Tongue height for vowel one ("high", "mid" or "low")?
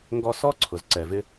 mid